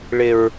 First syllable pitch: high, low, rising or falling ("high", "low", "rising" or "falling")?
low